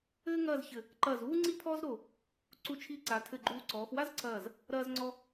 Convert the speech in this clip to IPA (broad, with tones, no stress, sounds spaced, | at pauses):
ɘː˥ ŋ ɐː˥˧ z ç ɘ˧˩ | ǃ ɐː˧˩ z uː˥ ŋ͡ǀ i˥ pʰ ɔː˥ z ɾ o˧˩ | ǀ u˧˩ t͡ʃʰ i˧ ǀ a˩˧ tʰ ɘ˧˩ ɡ͡ǃ u˧˩ ǀ ɔː˩˧ x w a˥ z ǀ ɐː˧˩ z | ɾ ɐː˧ z ŋ͡ǀ ɔ˧